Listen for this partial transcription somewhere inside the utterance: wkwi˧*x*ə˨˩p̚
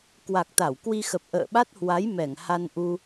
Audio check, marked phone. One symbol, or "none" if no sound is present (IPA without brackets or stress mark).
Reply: x